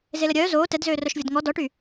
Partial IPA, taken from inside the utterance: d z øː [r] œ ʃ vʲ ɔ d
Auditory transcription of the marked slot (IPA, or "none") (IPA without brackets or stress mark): r